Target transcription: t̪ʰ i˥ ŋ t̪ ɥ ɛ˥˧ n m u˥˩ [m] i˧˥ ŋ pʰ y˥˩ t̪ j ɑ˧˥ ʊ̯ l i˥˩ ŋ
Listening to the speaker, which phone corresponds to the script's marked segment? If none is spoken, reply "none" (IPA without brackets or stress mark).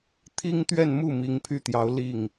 m